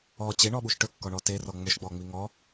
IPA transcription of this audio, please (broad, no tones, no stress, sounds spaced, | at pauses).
ɔ t͡ɕ e ɳ ɔ ɓ u ʃ ʈ ɵ kː ɔ ɳ ɔ t e r ɔ ŋ͡m ɵ ʃ ɡ͡b ɔ ŋ͡m i ŋ ɔ